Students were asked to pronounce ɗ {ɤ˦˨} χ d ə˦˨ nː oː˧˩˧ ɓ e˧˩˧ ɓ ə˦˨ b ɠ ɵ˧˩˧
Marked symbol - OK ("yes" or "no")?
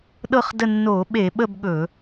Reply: yes